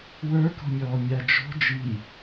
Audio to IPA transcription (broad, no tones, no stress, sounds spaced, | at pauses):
w ə˞ k ɔ̤ mʲ ɔː mʲ a d͡ʒ ɔ̤ d͡ʒ i